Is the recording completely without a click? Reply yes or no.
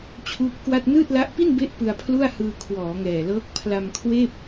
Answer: yes